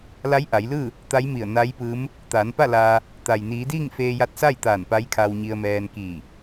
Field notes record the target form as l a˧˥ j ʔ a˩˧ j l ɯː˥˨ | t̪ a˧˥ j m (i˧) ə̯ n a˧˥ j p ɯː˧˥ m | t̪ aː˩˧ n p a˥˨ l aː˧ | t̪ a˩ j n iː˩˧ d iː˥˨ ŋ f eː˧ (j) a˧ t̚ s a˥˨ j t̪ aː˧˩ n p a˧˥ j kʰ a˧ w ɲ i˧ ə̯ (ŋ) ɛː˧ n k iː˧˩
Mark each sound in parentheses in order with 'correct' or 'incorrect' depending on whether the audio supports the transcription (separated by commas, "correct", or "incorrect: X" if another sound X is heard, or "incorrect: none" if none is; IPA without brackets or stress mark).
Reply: incorrect: i˧˩, correct, incorrect: m